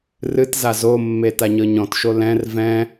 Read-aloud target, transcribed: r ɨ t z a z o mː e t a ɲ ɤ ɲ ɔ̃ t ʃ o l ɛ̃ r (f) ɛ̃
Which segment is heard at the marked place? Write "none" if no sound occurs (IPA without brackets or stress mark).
v